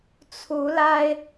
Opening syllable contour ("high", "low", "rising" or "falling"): rising